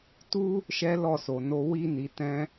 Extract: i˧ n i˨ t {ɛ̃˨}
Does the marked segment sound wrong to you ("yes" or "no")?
yes